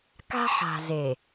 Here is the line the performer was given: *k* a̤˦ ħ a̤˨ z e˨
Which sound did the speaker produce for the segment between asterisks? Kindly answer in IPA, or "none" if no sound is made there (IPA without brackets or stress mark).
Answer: k